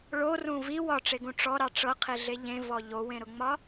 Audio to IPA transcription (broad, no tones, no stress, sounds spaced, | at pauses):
ɭ o r ũ v i w ɒ ʈ͡ʂ e ɡ ũ ʈ͡ʂ ɔ ɾ ɑ ʈ͡ʂ ɤ qʰ i ɮ e ʎ ẽ v ɔ ʎ o w ẽ ɾ ʊ ŋ͡m ɒ